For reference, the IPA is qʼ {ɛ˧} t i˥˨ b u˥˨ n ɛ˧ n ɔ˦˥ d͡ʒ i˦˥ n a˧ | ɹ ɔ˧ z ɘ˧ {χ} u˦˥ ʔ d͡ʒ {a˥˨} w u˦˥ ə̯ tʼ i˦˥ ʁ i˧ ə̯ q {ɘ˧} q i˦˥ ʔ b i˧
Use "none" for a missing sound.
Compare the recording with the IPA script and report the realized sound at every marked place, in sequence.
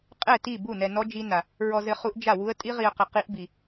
ɛ˥˨, χ, a˥˨, ɘ˧

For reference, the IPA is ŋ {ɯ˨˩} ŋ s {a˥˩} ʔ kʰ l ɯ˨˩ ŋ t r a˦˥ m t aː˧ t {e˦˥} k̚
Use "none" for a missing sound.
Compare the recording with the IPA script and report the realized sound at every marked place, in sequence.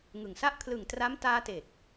ɯ˨˩, a˥˩, e˨˩

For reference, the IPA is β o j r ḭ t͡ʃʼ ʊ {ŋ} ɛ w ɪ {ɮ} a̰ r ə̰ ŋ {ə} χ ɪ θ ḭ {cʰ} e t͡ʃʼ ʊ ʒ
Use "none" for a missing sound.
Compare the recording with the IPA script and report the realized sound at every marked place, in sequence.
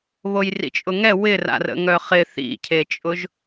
ŋ, r, œ, cʰ

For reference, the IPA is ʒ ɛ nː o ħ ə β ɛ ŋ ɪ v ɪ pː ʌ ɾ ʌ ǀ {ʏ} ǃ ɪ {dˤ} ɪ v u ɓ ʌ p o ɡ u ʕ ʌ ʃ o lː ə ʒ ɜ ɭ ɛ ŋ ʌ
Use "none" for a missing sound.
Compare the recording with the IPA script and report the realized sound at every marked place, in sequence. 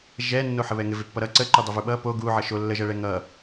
ə, dˤ

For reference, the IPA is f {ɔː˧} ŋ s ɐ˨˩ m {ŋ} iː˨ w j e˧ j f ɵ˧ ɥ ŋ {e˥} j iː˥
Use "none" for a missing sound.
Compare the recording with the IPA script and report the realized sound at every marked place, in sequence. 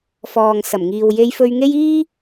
ɔː˨, ŋ, e˥

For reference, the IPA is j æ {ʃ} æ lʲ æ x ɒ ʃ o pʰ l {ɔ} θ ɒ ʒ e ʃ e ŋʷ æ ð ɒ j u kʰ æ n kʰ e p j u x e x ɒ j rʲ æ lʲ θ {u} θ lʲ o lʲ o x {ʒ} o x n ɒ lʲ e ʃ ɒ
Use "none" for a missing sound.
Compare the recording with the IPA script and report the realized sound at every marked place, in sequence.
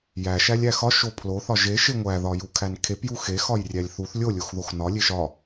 ʃ, o, u, ð

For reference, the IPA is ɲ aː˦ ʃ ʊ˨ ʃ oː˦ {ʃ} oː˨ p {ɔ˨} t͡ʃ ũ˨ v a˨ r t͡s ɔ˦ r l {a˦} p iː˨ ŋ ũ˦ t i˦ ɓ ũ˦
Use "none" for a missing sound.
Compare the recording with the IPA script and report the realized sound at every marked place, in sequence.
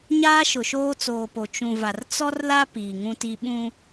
t͡s, o˨, a˦

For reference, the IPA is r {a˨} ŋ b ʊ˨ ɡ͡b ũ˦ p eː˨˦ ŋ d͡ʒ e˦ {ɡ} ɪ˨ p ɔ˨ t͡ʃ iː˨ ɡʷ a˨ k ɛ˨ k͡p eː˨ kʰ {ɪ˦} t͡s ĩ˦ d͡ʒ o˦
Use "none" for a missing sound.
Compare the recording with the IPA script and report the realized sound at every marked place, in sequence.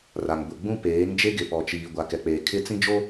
a˨, ɡ, ɪ˦

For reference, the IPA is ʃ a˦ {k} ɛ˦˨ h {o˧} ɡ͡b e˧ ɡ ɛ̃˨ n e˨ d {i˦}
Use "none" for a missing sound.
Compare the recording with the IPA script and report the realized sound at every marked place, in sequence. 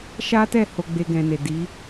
t, o˧, i˨˦

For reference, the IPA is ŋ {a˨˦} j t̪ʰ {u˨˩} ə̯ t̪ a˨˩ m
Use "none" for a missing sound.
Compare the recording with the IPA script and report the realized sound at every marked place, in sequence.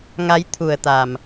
a˨˦, u˨˩

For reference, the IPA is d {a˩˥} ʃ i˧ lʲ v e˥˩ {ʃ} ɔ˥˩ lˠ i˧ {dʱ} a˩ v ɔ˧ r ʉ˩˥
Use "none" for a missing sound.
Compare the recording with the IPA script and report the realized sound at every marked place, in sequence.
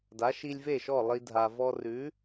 a˩˥, ʃ, dʱ

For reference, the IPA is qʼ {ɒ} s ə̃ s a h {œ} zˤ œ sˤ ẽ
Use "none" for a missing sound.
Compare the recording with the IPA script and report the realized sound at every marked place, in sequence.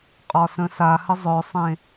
ɒ, ə

